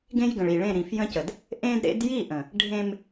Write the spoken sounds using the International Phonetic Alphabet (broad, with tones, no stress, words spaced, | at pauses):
ɡẽ˦jɡə̃˨ɭi˨ɭẽ˦˨ ɾĩ˨fjə̃˦cə˨d | ʔẽ˦dɾḛ˦d ji˦˨ʔə̃˨ | ɖʱẽ˦m